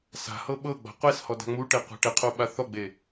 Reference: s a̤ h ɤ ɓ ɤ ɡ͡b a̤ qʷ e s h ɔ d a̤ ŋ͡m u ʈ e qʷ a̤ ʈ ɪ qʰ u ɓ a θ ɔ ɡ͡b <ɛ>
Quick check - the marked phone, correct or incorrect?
incorrect